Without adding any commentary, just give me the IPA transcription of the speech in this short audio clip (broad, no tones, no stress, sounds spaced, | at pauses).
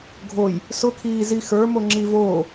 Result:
ɡʱ o j | s ʊ kʰ iː z i x ə˞ m o ŋ͡ǁ i v oː